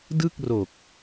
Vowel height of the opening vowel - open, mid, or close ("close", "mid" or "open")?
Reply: close